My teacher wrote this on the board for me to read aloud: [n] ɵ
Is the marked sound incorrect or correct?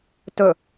incorrect